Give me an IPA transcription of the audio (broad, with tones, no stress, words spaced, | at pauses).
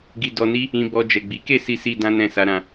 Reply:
ɡi˧dɔ˧ni˦ | ĩ˧bɔ˧ d͡ʒɛ˨ɡ͡bi˨˦ke˦˨si˧ si˧ dã˦nɛ̃˦˨ sa˧ ɾã˧